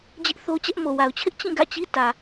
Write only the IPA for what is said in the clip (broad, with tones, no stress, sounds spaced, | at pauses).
d͡ʑ ɪ˦ ʔ θ o˦ t͡ɕ ɛ˦ ʔ m o˨ w a˨ ʊ̯ t͡ɕʰ ɪ˦ ʔ t͡ɕ ĩ˦˨ ɡ ä̰˦˨ t͡ɕ i˦ t ä˨